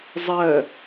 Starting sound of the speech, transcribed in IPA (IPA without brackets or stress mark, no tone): zˤ